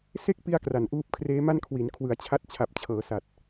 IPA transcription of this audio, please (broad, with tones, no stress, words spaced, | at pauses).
se˥˩k̚ pi˥˩a̯kra˨˩n ʔuː˦˥p̚kʰreː˦˥ma˥˩nkʰwi˩˦n kʰwɯ˩˦a̯t͡ɕʰa˦˥t̚t͡ɕʰa˨˩p̚ t͡ɕʰɤː˩˦sa˨˩t̚